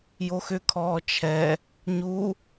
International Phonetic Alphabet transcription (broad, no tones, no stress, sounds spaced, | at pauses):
j o x ʏ kʰ ɔː t͡ʃʰ ɛ | ɲ u